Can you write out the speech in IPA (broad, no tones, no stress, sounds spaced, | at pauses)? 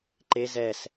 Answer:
ǃ e z ɛ s